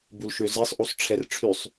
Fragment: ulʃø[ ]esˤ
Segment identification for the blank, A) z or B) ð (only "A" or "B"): A